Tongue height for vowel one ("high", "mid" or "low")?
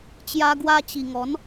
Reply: low